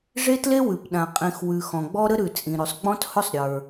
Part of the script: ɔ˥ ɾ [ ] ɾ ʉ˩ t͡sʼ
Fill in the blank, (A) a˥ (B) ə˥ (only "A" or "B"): B